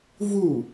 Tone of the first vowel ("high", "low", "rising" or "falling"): falling